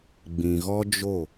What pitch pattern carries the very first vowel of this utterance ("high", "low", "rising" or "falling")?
low